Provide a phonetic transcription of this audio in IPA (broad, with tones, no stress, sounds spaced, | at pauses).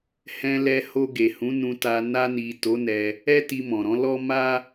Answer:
h ɛ̃˧ l ɛ˧ h o˧ ɡ e˨ h ũ˨˦ n ũ˧ t a˧ n a˧ n i˨ t o˨˦ n ɛ˧ | ɛ˦ t i˧ m ɔ̃˨ ɾ ɔ̃˨˦ l ɔ˦ m a˦